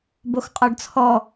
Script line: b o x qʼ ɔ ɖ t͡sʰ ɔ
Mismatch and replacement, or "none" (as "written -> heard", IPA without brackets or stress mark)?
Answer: none